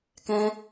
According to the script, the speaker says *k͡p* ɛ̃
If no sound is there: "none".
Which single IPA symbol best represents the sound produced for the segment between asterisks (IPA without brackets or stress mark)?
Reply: k